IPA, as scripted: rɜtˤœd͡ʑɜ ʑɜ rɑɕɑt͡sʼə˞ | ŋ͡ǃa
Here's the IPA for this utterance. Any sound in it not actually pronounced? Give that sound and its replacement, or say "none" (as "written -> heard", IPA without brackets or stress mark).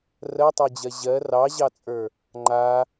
ɕ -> ʑ